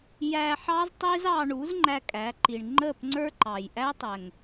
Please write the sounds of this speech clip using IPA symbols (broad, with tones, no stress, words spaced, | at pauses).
jæ˧ħɑ˦z tˤi˦zɑ˧ɳu˨˦z ŋ͡ǃæ˦kʼæ˨˦ǃi˨ɳ ŋ͡ǃə˦˨p ŋ͡ǀə˞˦ǃɑ˨j ʔæ˦tˤɛ˨ŋ